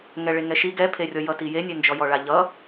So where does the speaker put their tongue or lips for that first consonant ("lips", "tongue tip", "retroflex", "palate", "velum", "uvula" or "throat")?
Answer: velum